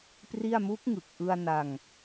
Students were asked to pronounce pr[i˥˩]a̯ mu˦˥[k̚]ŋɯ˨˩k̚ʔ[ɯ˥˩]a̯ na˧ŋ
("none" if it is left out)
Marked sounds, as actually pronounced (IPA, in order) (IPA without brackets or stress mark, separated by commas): i˥˩, k̚, ɯ˧